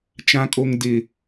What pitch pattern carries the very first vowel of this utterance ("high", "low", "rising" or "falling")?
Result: high